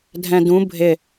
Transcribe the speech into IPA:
dʱ ɛ̃ d ũ bʱ ɪ

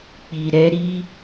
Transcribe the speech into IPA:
k͡p i˨ ɾ ɛ˧ ɾ i˦

